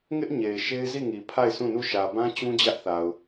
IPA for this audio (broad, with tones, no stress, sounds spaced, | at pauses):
ŋ ɪ˦ ʔ ɲ e˨ ɪ̯ ʃ e˦ ɪ̯ z i˦˨ ŋ i˨ pʰ a˦˨ ɪ̯ s ũ˦˨ n u˦˨ ʃ ä˨ b ã˦ t͡ɕ ũ˦ d͡ʑ ä˦ ʔ θ a˨ ʊ̯